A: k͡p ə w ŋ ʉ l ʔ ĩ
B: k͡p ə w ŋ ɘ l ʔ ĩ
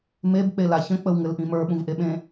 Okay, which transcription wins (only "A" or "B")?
B